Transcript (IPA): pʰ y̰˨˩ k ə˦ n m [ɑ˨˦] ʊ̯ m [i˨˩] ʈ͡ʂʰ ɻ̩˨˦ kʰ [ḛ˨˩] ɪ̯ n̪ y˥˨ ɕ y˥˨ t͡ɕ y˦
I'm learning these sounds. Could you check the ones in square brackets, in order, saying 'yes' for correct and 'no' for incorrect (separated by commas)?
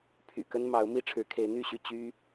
yes, no, no